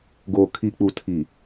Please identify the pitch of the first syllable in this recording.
low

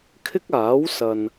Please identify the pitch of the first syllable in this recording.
high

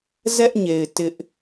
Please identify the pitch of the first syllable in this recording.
high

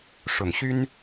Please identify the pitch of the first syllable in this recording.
low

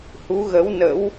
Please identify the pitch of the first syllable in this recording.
rising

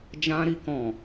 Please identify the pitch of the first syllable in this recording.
high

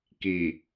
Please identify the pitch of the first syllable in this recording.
low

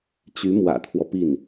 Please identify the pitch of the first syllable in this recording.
rising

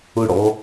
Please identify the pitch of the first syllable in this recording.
falling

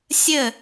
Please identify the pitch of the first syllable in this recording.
falling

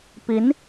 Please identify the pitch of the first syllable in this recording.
rising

